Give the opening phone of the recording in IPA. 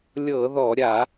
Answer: lʲ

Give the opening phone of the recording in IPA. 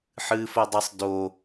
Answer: ħ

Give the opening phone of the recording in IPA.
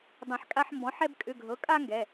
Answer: dˤ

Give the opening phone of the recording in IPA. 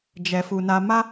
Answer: d͡ʒ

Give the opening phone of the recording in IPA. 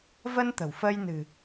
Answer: v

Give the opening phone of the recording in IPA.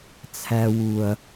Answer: t͡sʰ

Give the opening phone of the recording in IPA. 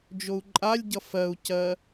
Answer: d͡ʒ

